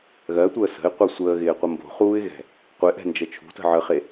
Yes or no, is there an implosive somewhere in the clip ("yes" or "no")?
no